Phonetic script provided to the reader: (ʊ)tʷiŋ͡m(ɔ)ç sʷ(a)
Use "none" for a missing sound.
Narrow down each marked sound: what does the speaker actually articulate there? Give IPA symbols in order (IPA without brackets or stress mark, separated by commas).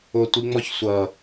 ʊ, ɔ, ʌ